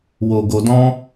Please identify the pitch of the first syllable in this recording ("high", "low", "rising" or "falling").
low